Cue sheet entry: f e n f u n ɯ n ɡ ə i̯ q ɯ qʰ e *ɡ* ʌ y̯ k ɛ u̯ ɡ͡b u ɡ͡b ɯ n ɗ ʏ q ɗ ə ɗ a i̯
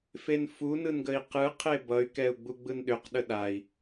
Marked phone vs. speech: incorrect: b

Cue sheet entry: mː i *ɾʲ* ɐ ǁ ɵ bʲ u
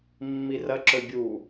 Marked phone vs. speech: incorrect: r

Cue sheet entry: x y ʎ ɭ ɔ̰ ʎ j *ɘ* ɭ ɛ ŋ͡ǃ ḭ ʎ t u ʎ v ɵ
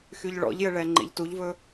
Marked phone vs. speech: correct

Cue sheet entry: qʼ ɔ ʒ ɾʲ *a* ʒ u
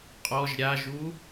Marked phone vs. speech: correct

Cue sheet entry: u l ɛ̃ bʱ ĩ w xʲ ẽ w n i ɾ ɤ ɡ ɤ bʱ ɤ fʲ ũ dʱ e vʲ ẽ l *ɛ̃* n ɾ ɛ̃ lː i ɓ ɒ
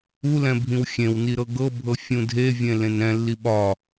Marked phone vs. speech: incorrect: ẽ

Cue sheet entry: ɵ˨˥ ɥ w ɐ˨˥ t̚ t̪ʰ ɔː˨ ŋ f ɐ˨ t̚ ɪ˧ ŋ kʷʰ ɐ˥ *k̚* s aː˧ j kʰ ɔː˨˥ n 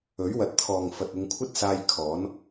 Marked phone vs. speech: incorrect: t̚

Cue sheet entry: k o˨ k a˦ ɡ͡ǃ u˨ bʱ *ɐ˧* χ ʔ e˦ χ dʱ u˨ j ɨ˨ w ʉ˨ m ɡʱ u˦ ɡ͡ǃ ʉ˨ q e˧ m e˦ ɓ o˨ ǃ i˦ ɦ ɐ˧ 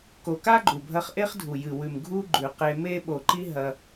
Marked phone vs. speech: correct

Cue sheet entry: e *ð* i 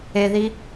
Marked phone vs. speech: correct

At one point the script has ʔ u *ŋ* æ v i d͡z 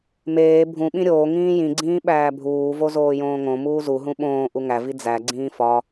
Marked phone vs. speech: correct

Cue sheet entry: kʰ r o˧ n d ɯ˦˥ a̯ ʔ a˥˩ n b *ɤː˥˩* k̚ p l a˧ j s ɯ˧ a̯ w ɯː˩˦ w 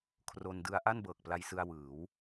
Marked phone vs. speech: incorrect: ɤː˨˩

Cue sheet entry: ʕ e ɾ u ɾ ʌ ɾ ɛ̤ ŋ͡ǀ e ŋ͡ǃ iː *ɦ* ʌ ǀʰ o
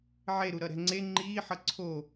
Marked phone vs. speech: incorrect: ħ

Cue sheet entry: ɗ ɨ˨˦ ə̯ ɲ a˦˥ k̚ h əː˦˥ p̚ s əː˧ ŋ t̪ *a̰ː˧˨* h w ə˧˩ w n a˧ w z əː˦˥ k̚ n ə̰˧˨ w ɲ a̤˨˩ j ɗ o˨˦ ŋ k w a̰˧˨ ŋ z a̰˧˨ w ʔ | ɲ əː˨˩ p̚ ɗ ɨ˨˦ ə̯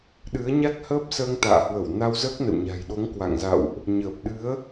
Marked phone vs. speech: correct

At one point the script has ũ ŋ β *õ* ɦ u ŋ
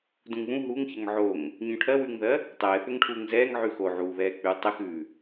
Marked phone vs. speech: incorrect: ũ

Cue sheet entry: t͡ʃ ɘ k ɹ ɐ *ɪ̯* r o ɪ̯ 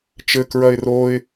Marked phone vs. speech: correct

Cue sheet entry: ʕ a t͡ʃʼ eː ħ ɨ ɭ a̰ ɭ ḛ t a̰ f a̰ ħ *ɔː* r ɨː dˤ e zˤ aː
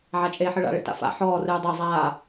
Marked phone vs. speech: correct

